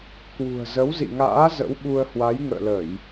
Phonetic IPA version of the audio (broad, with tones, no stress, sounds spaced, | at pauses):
k w ṳ˨˩ ə̯ z ə˨˦ w z ḭ˧˨ ŋ a̰ː˧˥ z ə̰˧˥ w ɓ u˧ ə̯ h w a˨˦ j ŋ ə̰ː˧˨ l ə˧˩˨ j